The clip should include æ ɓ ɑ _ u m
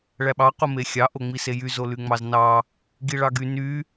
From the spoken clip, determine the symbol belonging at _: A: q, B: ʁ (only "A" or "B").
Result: A